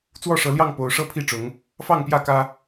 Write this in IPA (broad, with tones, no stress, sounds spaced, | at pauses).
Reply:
t͡s w ɔ˥˨ ʂ ɤ˨˦ l j ɑ˥˨ ŋ p o˨˦ ʊ̯ ʂ ɤ˦ pʰ i˥˨ ʈ͡ʂ ʊ˨˦ ŋ | f ɑ˥˨ ŋ p j ä˥˨ k ä˦